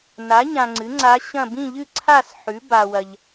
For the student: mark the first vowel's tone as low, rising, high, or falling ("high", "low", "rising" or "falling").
rising